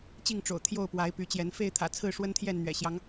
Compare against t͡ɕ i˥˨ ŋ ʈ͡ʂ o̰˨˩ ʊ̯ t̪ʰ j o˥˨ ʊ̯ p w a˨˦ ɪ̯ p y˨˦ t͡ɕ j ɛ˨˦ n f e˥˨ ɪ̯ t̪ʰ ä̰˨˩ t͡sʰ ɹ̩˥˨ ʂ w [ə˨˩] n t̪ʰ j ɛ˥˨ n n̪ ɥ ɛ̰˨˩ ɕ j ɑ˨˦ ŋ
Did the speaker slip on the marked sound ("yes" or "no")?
yes